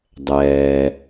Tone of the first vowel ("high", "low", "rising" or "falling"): low